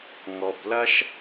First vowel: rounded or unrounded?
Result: rounded